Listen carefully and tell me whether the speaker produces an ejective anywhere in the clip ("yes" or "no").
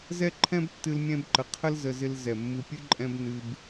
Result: yes